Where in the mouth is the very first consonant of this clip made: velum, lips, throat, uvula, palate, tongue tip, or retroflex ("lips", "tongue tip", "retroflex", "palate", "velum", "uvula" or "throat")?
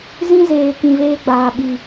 tongue tip